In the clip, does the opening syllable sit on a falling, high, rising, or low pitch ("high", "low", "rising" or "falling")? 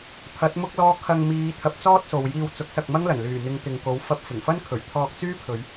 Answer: rising